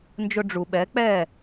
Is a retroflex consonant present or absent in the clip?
present